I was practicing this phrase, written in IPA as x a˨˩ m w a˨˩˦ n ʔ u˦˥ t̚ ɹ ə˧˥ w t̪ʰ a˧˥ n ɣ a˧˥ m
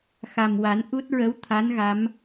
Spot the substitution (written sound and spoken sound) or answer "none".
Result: none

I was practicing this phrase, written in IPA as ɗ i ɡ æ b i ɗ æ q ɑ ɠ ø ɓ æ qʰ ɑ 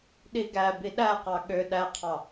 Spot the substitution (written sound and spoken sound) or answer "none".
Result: ɓ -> ɗ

